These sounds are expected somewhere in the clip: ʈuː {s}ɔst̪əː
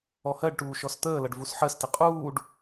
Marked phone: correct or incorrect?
incorrect